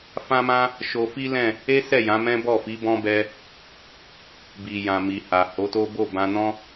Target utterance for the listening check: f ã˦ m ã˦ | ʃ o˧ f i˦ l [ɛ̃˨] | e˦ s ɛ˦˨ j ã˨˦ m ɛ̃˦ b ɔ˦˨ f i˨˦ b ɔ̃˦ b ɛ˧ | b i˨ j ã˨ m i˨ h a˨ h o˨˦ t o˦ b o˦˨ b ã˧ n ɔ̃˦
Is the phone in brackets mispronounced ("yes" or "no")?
yes